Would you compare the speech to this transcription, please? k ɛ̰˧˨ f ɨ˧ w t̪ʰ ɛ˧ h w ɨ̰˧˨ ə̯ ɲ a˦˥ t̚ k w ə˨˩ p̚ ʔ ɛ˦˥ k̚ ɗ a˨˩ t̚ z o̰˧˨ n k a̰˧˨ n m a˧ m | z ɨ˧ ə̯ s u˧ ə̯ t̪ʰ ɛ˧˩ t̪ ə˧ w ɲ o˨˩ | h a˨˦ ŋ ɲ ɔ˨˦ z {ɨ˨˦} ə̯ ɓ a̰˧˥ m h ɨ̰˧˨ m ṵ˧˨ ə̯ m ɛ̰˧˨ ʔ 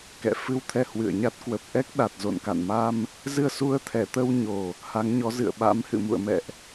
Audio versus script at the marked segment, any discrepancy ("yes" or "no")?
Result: yes